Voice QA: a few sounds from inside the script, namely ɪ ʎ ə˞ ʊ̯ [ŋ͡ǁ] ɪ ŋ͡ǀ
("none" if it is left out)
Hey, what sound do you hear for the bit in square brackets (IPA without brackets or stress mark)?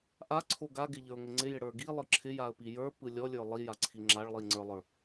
ŋ